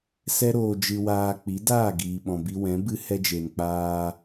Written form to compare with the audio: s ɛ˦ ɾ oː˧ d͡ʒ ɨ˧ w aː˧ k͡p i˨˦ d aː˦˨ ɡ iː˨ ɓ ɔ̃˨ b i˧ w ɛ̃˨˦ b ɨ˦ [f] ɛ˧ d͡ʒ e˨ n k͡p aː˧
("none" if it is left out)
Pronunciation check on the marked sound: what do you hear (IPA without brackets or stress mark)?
h